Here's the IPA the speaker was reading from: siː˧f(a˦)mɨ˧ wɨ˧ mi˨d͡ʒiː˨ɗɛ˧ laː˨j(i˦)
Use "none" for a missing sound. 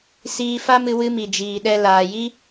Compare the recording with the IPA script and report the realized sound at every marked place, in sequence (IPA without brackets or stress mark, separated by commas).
a˦, i˦